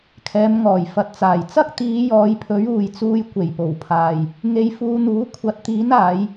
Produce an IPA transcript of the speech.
kʰ ɛː˨˧ m ŋ ɔː˨˩ j f ɐ˨ t̚ t͡s aː˨˩ j t͡s ɐ˥ k̚ t̪ iː˨˧ j ɔː˨˧ j pʰ ɵ˨˥ ɥ uː˨ j t͡s uː˧ j kʷ e˨˩ j p o˨˩ w pʰ aː˨ j | ŋ e˧ j f uː˧ n̪ uː˨˥ kʷʰ ɐ˨˥ t̚ t̪ iː˨˥ n aː˨˧ j

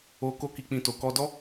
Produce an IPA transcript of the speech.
o˧ k o˦ k i˧ k͡p ĩ˧ t o˨ k ɔ˧ d ɔ˦

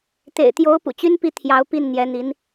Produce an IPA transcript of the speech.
t̪ ḛ˨˩ ɪ̯ t̪ j o˧˥ ʊ̯ p ṵ˨˩ t͡ɕ y˥ n p i˥˩ t̪ʰ j ɑ˧˥ ʊ̯ p i˥˩ n n̪ j ɛ˧˥ n̪ i˧˥ n

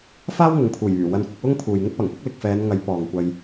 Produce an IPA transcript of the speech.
f aː˥ w ŋ ʊ˨ ŋ pʰ uː˨˩ j yː˨˩ w ɐ˧ n kʷ ɪ˧ k̚ w ʊ˥ ŋ pʰ uː˨ j ŋ ʊ˥ k̚ p ɐ˨˩ ŋ p ʊ˥ k̚ l ɪ˨ k̚ f ɛː˨˧ n ŋ ɐ˨˥ j p ɔː˨ ŋ kʷ ɐ˧ j

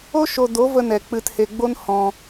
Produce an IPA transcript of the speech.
o˦ ʃ o˧ d o˨˦ v ə˧ n ɛ˨ k͡p ɨ˧ t h e˧ ɡ͡b o˦ n h ɔ̃˧

